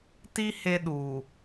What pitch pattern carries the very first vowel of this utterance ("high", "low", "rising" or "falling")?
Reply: high